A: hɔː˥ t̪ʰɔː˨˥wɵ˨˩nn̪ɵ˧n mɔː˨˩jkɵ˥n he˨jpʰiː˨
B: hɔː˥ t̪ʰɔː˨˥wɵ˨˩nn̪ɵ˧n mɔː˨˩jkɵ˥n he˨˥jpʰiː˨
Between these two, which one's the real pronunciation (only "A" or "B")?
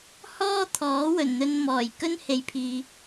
A